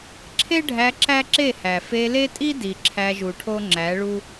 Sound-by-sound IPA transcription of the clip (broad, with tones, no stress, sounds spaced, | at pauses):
ǁʰ e˦ ɖʱ æ˧ ǁ æ˦ ǁ e˦˨ h æ˨ f e˧ l e˦ tʼ i˦ d i˨ ǁʰ æ˧ ʒ u˨ ʈʰ o˦ ŋ͡ǁ æ˨˦ ɭ u˦